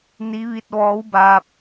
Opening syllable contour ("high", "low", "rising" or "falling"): rising